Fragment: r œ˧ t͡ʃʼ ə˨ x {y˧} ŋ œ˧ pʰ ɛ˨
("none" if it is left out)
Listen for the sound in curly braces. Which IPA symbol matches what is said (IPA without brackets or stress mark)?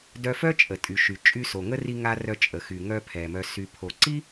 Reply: y˨